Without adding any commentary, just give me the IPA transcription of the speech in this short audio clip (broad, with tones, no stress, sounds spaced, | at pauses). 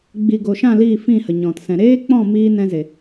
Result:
ɡ͡b i˨ ɡ o˨ ʃ ã˦˨ l iː˦˨ f ĩ˦˨ h ə˨ ɲ ɔ̃˨ t s ɛ̃˨ ɾ eː˦ k͡p ɔ̃˦˨ m iː˧ n ɛ̃˦ z e˨